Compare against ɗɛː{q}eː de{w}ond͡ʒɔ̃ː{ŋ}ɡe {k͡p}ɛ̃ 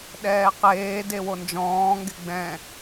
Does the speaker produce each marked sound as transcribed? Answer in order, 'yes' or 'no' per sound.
yes, yes, yes, no

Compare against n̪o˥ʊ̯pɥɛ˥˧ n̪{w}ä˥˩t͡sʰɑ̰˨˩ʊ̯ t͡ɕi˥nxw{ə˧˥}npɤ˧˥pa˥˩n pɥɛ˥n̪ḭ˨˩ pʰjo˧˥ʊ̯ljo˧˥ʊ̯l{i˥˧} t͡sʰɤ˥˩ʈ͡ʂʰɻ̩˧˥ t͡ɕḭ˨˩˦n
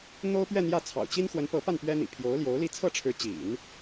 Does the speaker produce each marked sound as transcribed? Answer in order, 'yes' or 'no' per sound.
no, yes, yes

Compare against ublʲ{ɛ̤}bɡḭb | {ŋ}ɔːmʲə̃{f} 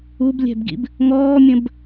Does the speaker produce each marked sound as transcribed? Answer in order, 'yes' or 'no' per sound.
yes, yes, no

